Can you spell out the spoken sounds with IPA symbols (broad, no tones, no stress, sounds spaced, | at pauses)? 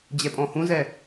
d͡ʑ ɛ pʼ ɔ̃ h ũ z ɛ